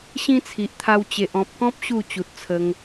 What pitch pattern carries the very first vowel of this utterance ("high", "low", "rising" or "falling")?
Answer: high